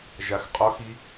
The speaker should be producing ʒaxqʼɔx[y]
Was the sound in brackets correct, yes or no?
no